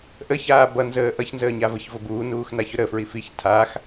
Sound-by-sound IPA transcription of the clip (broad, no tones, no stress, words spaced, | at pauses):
ʔəçaː bʌnzəː ʔʌçnzəːɲa vəçvʊ buːnuːxnaçʊ ɾəfɹi fiç tʰax